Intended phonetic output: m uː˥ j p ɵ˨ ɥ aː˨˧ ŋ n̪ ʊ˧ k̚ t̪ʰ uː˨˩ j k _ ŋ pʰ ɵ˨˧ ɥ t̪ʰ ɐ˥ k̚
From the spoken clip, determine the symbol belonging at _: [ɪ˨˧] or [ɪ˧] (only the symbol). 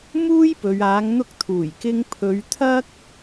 ɪ˧